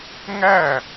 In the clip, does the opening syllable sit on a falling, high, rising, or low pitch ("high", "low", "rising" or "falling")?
falling